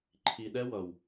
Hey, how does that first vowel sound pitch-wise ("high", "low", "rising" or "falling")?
low